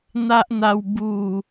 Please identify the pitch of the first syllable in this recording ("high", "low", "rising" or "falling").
high